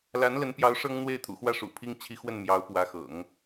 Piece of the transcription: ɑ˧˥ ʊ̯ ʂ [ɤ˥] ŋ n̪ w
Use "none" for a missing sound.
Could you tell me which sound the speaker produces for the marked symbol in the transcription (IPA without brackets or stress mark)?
ɤ˥